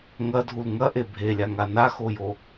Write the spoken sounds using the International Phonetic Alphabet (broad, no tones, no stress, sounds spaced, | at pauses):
ŋ ɐ dʱ u l ŋ ɐ ʔ e bʱ e lʲ a ŋ a n a x o j o